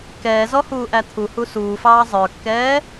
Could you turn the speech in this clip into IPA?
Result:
k ɛː z ɔ h uː ʔ æ t̪ʰ u h u s uː f ɑː zˤ ə˞ kː ɛː

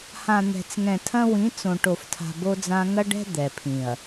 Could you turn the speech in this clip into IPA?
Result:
h ã˨ n̪ ɛ̤˨ t͡s ŋ ɛ̃˨ tʰ ɐ̃˦ w ĩ˨˦ t͡s õ˨ ʈ o˨ f tʰ a̤˨ b o˦ d͡z ã˦ ŋ ɐ˦ ɖ ɛ̤˦ d̪ ɛ˨ pʰ ĩ˨ ɐ̯

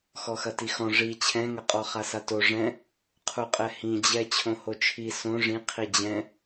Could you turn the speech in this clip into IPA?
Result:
x ɔ x ɐ t i x ɔ̃ ʐ i t͡ɕʰ ɛ̃ ŋ ɐ qʼ ɔ χ a s a t o ʐ ɛ̃ | qʰ u qʼ ɛ h ĩ d͡ʑ ɛ t͡ɕʰ õ h o t͡ʃʰ i s õ ʐ ĩ qʰ i d͡ʑ ɛ̃

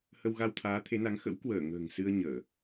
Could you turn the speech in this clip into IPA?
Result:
h ə˧ w ɣ a˧ w t̪ʰ aː˨˦ t̪ʰ e˨˦ n a˨˦ ŋ x ə̰˧˥ w k w əː˧˩ ŋ ə̤ː˨˩ ŋ s ɨ˧ ə̯ ɲ əː˧˩˨

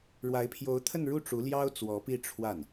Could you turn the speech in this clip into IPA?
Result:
ɻ w a˧˥ ɪ̯ pʰ j o˧˥ ʊ̯ t̪ʰ ə˥˧ n ɻ u˥˩ ʈ͡ʂ u˧˥ l j ɑ˥ ʊ̯ t͡s w ɔ˧˥ p i˥˧ ʈ͡ʂʰ w a˥˩ n

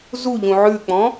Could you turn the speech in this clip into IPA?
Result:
z u ʎ ũ ʕ ʉ k͡p ɔ̃

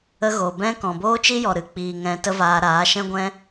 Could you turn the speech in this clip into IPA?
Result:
ə˧ ɣ o˨ b ɛ̃˦ k ɔ̃˨ b oː˦ t͡ʃ i˦ j ɔ˨ ɾ ɨ˨ k͡p iː˨ ŋ ɛ̃˧ t ə˦ v aː˧ ɾ aː˨˦ ʃ ɛ̃˦ ɡʷ ɛ̃˦

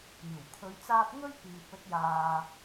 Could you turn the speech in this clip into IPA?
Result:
iː˨˩ w kʰ ɵ˨˧ ɥ t͡s aː˧ p̚ ŋ ɵ˥ ɥ p iː˨ p̚ ɵ˨˥ t̚ j aː˨

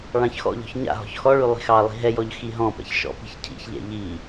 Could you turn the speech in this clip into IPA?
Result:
ɭ ɑ̃ ç x ɔ̰ ʎ ɔ̤ ç ɲ a̰ ɦ ɔ̤ ç x ɔ ɭ y lˠ i̤ x ɑ lˠ i̤ ɦ ɛ j ɔ ʎ x i ɦ ɔ̃ p ɛ̰ ç ʃ ɔ̰ p i̤ ç cʰ ḭ ç ʎ ɛ̰ ʎ i

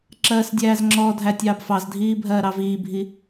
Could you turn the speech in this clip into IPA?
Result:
ǁ ɜː s dʲ æː z ŋ͡ǁ ɔ dʱ æ tʲ ɑː b f ɑ z dʱ iː bʱ ɜː ɾ ɑ v iː bʱ i

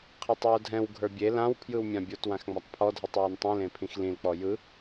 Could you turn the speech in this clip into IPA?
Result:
qʰ e tˤ w o dʱ ɛ̃ w ɡʱ ə˞ bʲ e l ã w pʰ j ɯ w mʲ ã bʲ o t w ã x ŋ͡m a tˤ pʰ ɔ dʱ ɯ tˤ w ə˞ n tˤ ĩ l ẽ pʰ ĩ x l ĩ l k͡p ɔ j ɯ

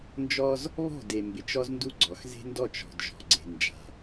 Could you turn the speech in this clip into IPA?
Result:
n d͡ʒ ɔ˦ z | β ɔ̤˦˨ d e˨ m b ɪ˨ t͡ʃ ɔ˦ z n d u˦ ɡ͡ǀ ɔ˨ x z e̤˦ n d ɔ˦˨ t͡ʃ ɔ̤˨ d ʒ ɔ̤˨ ɡ͡ǀ e̤˨ n d͡ʒ a̤˨

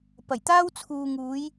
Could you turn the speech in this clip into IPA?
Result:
p ɐ˨˩ j t̪ aː˥ w t͡sʰ uː˨ ŋ uː˨˧ j

